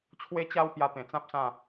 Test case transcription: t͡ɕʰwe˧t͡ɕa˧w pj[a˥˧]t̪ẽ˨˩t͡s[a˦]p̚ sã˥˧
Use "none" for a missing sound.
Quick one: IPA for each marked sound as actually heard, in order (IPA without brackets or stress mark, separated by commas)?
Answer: a˧, ã˦